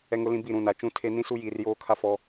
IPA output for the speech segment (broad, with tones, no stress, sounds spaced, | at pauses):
ɛ˨ ŋ ʊ˨ l ĩ˨ b i˦˨ ɾ ũ˨ n a˨ t͡ʃ ũ˦ tʰ e˦ n ĩ˦ s u˦ j iː˨ r j oː˦ kʰ a˦ f ɔ˦